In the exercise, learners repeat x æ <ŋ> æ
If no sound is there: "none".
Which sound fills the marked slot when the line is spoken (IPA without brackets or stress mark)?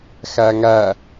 ŋ